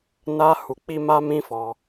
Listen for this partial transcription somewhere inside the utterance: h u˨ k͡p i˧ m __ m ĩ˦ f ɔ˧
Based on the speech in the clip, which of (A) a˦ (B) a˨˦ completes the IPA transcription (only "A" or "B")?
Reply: A